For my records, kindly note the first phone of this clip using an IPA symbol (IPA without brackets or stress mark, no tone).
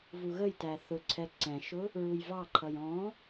v